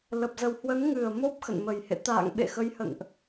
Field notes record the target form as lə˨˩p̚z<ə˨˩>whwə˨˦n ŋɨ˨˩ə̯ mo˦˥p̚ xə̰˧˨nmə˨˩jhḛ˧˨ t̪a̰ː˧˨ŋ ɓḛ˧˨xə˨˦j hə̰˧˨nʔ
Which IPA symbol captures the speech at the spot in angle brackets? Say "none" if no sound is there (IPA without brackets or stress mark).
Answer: ə˨˩